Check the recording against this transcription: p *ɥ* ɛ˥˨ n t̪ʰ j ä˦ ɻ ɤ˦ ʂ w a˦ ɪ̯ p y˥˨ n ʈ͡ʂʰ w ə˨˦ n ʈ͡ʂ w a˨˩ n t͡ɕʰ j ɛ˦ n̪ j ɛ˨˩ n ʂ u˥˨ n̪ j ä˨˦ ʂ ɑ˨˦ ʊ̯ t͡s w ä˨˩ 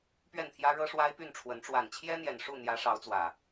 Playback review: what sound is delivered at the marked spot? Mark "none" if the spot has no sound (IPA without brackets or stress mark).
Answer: ɥ